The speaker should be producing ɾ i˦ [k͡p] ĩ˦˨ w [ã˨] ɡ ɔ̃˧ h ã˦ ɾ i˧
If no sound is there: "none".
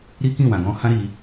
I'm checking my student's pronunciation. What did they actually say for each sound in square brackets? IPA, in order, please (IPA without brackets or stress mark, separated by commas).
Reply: k, ã˨